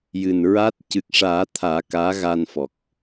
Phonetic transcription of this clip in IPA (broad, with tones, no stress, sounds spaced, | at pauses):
j ɨ˨˩ n ɹ a˦˥ t̚ c ɨ˨˩ k̚ ʂ aː˨˩˦ t̪ʰ aː˨˩˦ k aː˧˥ ɣ a˧ n f ɔ˨˩ k̚